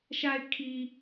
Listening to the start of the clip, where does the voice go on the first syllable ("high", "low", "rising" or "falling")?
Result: low